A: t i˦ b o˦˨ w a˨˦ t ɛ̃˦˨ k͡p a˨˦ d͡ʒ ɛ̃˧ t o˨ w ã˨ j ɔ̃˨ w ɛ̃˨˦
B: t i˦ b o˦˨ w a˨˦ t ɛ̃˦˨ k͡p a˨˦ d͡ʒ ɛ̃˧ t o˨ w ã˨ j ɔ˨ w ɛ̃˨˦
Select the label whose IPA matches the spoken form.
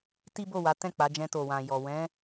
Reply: B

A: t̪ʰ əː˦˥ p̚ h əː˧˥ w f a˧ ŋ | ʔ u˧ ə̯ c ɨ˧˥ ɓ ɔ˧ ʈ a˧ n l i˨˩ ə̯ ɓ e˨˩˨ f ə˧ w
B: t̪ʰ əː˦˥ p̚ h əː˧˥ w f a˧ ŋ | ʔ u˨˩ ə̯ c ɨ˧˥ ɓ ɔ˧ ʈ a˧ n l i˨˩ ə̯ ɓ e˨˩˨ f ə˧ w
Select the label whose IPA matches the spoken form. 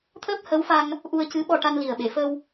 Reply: A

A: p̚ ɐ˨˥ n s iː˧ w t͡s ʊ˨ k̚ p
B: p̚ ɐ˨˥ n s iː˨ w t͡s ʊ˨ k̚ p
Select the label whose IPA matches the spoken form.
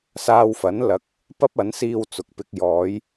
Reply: A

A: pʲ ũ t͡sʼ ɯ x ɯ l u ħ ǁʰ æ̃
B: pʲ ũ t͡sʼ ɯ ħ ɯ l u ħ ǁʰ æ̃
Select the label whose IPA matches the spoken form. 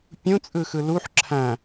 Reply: A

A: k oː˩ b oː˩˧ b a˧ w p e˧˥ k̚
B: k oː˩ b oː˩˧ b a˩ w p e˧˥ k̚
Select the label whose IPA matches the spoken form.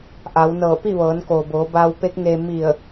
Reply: A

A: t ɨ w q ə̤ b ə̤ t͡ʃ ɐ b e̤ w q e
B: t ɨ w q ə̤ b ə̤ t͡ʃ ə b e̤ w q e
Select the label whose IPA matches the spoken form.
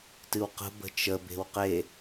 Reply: B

